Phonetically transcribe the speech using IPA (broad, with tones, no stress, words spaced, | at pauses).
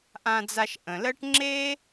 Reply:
ʔã˧d͡za˧ʃʔə̃˩lɜ˥ʈ ŋ͡ǁe˥